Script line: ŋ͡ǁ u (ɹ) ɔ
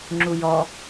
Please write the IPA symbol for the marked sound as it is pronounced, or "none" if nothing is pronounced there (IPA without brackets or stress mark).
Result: j